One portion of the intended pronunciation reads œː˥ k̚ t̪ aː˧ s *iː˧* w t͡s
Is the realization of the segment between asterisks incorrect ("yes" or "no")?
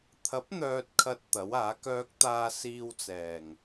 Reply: no